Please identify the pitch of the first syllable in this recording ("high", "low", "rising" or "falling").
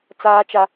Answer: high